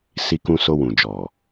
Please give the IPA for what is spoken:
s i˧ k ũ˧ s o˧ w ũ˨ d͡ʒ ɔ˨

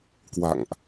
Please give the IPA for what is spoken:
k w a̰˧˨ ŋ ʔ

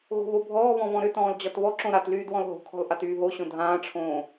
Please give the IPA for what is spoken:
ɣ o̤ β o bʱ ɔː β ɔ̃ β ɔ̃ ɾ ʏ t ɔ̃ː l d͡ʑ ɒ t β ɔ ǁ õ ɾ a t l yː d w ɔ̃ l ɦ o̤ kʰ ɔ̤ l ʔ a t yː ɦ o ɕ õ dʱ ãː ʈ͡ʂʰ õː

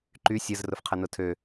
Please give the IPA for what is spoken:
ǃ y sʲ ə z r ʊ f qʰ ɐ n ʊ tʰ ø

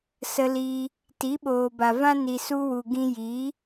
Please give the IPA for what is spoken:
s ə˧ l iː˧ | t i˨˦ ɓ oː˨ b a˨ v ã˦ n i˨ s u˧ w u˨ ɡ ĩ˧ j iː˨˦

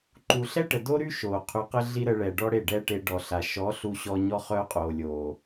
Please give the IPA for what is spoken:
ǃ u˧ ɬ ɛ˦ ʈ ə˨ d o˦ ɾ y˦ ʃ oː˨ qʰ y˧ q ə˦ ɮ i˦ ɾ ə˧ ɭ ɛː˨ ɖ ɔ˦ ɽ e˦˨ ɖ ɛː˦ ʈ e˧ ɖ ɔ˨ ɬ a˨ ʃ ɔ˨˦ ɬ u˧ ɕ ɔ˧ ɲ ɔ˦ χ œː˦ qʼ oː˨ lʲ oː˨

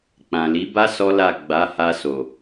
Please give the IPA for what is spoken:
k͡p ã˨ l i˨˦ b a˦ s ɔ˦ l a˦˨ ɡ͡b a˨˦ h a˧ s o˨

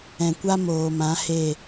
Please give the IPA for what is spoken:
ɛ̃˨ kʷ a˦ m oː˨ m ã˨˦ h e˦˨

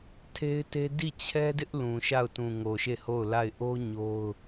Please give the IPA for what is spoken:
tʰ e˦ ɪ̯ t e˦ d i˦˨ t͡ɕʰ ɛ˦ d ɪ˦ ʔ l ũ˨ ʃ a˦˨ ʊ̯ t ũ˨ ŋ o˨ ʃ e˦˨ h o˦˨ ʊ̯ l a˦˨ ɪ̯ ʔ o˦ ɲ o˦ ʊ̯

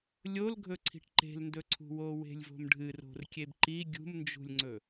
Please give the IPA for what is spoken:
lʲ o l ɡʱ ɵ ǀʰ i̤ ʈ ǃ e̤ l n d ɵ ǀʰ ṳ w o w e̤ lʲ v o̤ m ɖʱ ɨ r o̤ r kʲ e b ǃ i ɡʲ ṳ m n d͡ʒ ṳ lʲ ŋ͡ǀ ɵ

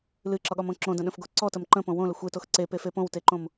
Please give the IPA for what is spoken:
l ɨ ǁ ɒ ɠ ɒ m õ ǁ õ d ə̃ ɗ ə̃ f ɡ o ǀ ɔ t ə m ǃ ə̃ p õ w õ l ə xʷ e t o x ǀ e p e f e p õ w t e ǃ õ m

